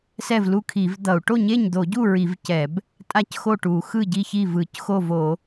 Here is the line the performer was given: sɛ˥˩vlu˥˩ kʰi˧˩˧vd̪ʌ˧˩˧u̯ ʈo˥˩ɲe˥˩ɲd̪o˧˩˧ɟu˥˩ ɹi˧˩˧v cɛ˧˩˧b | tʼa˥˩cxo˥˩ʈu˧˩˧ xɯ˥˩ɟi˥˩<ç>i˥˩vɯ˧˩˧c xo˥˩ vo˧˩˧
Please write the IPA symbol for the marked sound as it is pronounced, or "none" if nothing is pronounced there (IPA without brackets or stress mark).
ç